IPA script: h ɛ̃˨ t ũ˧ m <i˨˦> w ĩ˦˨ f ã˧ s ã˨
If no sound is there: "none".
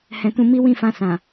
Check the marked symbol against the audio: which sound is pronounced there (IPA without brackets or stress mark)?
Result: i˦